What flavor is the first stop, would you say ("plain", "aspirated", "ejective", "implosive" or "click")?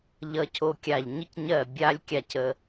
aspirated